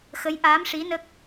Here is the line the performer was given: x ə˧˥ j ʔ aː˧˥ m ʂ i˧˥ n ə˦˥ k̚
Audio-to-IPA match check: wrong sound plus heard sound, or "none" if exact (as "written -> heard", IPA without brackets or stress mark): none